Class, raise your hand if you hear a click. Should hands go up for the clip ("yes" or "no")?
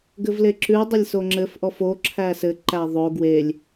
yes